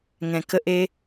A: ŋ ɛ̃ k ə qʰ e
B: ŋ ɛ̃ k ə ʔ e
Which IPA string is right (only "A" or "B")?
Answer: B